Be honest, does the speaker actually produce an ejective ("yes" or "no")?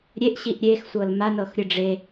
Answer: no